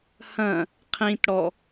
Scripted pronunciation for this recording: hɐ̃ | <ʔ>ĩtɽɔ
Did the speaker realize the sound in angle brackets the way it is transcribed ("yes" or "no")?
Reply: no